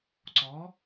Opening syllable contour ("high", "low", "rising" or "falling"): rising